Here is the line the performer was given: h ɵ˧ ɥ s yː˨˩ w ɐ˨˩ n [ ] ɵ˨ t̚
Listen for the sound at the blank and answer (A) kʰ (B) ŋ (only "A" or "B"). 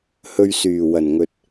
B